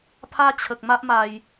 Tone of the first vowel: high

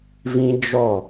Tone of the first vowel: high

